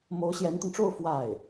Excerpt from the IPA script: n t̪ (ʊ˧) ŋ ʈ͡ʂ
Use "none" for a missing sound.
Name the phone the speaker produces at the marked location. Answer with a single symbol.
ʊ˧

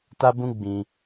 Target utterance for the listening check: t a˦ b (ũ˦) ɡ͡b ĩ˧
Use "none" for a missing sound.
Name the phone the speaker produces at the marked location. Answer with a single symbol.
ũ˦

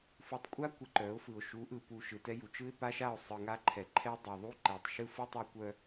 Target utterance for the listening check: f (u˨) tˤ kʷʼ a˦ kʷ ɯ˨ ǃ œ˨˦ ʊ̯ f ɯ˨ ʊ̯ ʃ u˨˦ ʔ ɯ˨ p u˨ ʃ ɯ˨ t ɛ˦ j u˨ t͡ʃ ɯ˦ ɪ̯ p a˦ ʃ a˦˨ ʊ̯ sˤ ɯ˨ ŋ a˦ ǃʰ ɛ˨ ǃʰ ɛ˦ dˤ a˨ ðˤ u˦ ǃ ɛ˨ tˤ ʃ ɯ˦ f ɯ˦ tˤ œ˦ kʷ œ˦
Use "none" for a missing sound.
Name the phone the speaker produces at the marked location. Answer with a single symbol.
u˨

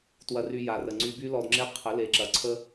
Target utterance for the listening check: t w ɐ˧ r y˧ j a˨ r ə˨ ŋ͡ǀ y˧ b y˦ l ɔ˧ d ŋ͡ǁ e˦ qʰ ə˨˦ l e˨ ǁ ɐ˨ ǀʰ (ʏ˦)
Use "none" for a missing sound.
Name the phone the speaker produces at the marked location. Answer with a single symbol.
ə˦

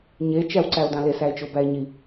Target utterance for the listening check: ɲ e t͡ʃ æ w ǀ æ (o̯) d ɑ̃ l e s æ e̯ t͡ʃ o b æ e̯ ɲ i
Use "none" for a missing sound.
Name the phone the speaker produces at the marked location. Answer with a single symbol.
o̯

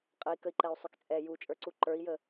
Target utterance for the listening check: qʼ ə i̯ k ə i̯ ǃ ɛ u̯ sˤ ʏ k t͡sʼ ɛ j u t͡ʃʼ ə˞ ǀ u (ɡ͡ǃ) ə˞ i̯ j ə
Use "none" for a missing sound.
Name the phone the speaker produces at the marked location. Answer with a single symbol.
ǃ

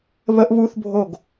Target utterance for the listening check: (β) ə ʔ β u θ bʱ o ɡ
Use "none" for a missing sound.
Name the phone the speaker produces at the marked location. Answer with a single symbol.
β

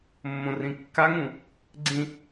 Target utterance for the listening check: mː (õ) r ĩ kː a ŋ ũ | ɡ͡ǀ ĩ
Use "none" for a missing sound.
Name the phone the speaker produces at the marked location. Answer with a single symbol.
õ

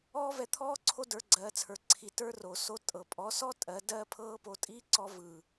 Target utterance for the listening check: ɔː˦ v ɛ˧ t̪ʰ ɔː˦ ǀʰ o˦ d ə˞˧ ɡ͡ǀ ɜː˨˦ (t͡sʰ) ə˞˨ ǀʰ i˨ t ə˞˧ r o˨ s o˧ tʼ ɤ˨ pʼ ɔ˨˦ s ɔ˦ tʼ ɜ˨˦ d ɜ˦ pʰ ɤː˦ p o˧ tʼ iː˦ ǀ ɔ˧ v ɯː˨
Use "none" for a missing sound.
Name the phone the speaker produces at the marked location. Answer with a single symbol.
t͡sʰ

